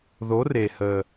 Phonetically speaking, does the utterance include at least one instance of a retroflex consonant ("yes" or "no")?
no